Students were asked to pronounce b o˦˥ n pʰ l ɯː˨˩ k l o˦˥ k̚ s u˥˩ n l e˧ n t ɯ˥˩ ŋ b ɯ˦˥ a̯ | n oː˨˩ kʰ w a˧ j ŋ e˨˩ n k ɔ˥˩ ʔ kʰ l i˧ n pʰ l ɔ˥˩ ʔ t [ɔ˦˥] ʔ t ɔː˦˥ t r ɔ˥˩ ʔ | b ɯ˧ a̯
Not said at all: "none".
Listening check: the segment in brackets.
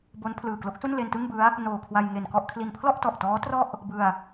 ɔ˨˩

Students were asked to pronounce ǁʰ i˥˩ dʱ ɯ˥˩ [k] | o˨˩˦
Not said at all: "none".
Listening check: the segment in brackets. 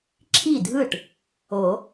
ʈ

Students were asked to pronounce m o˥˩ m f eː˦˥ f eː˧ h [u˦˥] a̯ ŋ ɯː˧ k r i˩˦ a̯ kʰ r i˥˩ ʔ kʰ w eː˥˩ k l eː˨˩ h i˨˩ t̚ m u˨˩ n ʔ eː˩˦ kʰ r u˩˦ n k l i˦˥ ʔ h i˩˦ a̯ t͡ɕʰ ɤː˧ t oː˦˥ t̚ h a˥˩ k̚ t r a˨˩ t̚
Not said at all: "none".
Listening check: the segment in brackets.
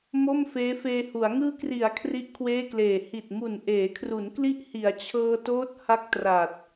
u˩˦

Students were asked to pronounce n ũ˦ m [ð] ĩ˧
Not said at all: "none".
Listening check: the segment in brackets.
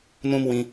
w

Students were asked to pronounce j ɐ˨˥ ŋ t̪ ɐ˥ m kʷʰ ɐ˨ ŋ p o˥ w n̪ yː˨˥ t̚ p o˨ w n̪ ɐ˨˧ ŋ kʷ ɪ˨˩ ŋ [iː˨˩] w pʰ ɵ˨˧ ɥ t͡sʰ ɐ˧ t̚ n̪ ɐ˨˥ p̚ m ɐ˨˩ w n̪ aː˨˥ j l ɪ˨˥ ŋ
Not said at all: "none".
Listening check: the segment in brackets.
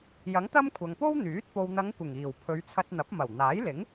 iː˨˩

